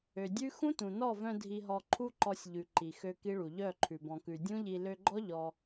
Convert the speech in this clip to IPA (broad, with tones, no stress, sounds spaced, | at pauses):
ø˨ dʲ ʉ˦ x ũ˦ t ũ˨ n ɔ˦˨ v œ̃˧ dʱ i˧ ɦ ɔ˧ ǃʰ u˦ ǃ ɔ˧ sʲ ʎ ʉ˨ ǃ i˨ x ø˧ k i˦ ɭ u˨ ʎ œ˦˨ ǃʰ ʉ˨ b ɔ̃˨ k ʉ˨ dʲ ũ˦ ʎ i˧ l ø˧ ɡ͡ǃ ɔ˦ ʎ ɔ˧